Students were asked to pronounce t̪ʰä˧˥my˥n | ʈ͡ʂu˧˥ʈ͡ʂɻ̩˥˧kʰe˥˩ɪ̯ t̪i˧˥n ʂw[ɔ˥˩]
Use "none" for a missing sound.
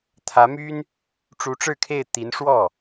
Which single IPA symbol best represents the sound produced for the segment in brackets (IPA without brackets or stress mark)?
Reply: ɔ˥˩